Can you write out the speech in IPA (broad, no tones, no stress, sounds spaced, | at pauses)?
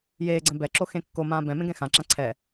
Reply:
j eː ɡ͡ǀ ɛ̃ b ɛ ǁ o x ẽ kː o m ãː b ɛ̃ m ẽ ɡ ɛ̃ x ã ǁ ã ǀʰ ɛ